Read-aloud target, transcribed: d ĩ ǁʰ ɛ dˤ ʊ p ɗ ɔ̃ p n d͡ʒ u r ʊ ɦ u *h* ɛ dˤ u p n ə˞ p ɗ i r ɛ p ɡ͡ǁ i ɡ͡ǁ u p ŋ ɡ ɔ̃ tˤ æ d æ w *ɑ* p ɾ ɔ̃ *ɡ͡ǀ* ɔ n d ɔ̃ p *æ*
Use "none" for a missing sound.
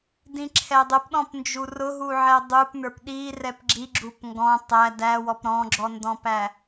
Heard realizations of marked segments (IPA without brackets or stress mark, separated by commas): ʕ, ɔ, ɡ͡ǁ, æ